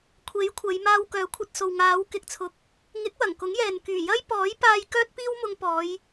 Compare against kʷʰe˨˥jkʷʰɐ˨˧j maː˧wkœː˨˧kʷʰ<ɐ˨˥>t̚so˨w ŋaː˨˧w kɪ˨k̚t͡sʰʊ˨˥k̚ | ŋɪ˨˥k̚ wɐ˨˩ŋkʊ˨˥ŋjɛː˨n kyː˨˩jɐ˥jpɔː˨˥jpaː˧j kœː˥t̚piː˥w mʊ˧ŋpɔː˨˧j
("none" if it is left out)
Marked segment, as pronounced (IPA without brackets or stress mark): ɐ˧